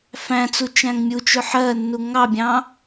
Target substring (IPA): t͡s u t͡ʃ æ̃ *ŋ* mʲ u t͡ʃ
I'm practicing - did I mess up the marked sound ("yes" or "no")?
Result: no